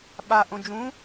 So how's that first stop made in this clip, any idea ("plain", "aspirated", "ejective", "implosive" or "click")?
implosive